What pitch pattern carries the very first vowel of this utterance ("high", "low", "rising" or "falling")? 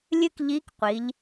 high